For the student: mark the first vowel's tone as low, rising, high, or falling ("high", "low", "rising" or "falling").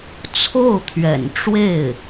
falling